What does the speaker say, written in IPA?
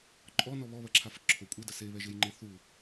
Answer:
ǃʼɔnɔ βɔβɐǁʰaf ǁʰo kʷʼedɐ seβɛʒejŋ͡ǃe θu

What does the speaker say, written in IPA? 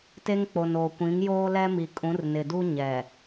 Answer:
te˦ŋk͡po˨noː˨ kʷĩ˨˦ŋ joː˦lɛ˦mi˨ kʼũ˨˦r nɪ˨du˦ ɲɛ˨

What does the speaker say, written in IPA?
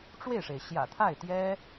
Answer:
ʈ͡ʂwe˥˩ɪ̯ʂe˩ɪ̯ ɕjä̰˨˩t̪ʰa˥˩ɪ̯t̪jɛ˥

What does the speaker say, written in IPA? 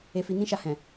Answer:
e˧fi˧nĩ˦ʃa˧ hɛ̃˨

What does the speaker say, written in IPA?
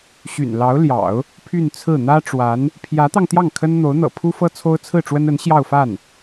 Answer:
ɕy̰˨˩n lɑ˧˥ʊ̯ljɑ̰˨˩˦ʊ̯ | pʰy˥˧nt͡sʰɹ̩˥˩ n̪ä˥ʈ͡ʂwa˧˥n | pʰjä˧˥t̪ɑ˧ŋ t̪jɑ˥˩ŋkʰə˥n n̪o˧˥ʊ̯n̪ɤ̰˨˩ pʰu˥fɤ˥ t͡sʰo˥ʊ̯t͡sʰɹ̩˥˩ʈ͡ʂwə˥n ə˧˥n ɕjɑ˥˧ʊ̯fa˥˩n

